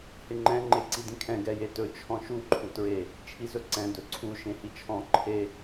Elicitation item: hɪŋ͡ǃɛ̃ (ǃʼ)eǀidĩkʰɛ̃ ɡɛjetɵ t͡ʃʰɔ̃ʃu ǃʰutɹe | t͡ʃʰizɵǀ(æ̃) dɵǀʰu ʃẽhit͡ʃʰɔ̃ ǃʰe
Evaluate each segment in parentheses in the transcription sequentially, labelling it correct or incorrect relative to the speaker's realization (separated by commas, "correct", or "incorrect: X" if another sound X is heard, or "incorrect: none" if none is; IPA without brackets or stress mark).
incorrect: ŋ͡ǃ, incorrect: ɛ̃